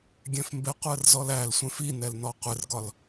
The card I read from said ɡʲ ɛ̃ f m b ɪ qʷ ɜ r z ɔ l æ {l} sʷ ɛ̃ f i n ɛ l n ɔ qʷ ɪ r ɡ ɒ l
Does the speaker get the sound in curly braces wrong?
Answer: no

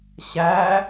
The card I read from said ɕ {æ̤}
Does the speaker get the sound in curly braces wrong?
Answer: yes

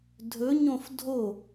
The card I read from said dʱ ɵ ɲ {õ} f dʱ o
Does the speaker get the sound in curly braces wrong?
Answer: no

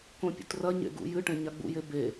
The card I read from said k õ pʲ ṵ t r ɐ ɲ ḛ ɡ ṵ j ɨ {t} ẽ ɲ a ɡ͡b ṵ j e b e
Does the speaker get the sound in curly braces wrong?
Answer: yes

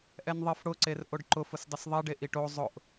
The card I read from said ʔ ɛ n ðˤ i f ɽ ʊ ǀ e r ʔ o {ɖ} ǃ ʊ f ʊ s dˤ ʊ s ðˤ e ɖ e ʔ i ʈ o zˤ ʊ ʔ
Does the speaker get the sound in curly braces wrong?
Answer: no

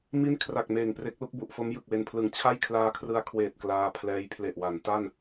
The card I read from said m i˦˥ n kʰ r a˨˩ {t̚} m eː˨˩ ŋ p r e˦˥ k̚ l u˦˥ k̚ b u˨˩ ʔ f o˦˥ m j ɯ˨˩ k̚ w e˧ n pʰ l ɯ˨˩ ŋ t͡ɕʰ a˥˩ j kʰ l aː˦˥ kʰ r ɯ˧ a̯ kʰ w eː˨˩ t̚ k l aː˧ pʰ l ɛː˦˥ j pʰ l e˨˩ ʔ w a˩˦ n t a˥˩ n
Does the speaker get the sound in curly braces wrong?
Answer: yes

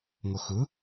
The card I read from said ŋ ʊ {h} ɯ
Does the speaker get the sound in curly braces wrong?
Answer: yes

